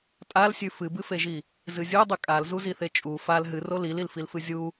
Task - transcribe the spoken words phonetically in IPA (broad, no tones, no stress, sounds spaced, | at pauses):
tʼ a l sʲ ʉ f ɨ b ɨ f e ʒ i | z ɨ zʲ u dˤ ʉ kʼ a l z u z i θ e t͡ʃʼ u f a l ɦ ɨ r o l i l i l f i l f ɨ zʲ u